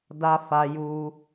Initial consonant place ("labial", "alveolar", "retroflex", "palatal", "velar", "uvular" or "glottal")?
alveolar